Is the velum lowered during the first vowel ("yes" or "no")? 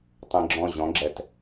yes